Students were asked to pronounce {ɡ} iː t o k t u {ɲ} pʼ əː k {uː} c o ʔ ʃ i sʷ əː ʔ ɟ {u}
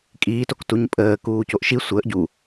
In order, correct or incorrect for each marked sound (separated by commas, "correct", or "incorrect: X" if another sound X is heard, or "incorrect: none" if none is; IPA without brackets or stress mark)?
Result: incorrect: kʼ, correct, correct, correct